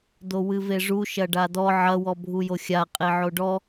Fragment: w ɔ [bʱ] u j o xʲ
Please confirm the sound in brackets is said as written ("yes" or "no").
yes